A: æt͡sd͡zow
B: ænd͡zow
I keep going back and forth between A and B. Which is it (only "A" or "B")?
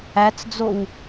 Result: A